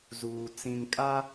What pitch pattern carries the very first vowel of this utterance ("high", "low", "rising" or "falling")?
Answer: low